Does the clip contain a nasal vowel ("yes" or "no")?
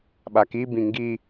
yes